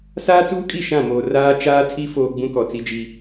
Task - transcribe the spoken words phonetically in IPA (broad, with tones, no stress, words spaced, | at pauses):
saː˦t͡suː˦kʼi˦˨ ʃã˦˨moː˨ raː˦t͡ʃaː˦tʰi˦ foː˦ ɡ͡bũ˦kɔ˨t͡si˦d͡ʒi˦